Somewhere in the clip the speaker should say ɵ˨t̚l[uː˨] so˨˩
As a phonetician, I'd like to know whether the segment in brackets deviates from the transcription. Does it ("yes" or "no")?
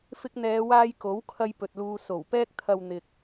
yes